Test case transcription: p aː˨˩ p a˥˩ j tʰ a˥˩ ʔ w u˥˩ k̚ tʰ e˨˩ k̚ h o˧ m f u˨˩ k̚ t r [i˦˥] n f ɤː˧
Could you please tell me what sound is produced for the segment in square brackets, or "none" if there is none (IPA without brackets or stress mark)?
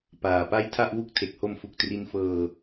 i˦˥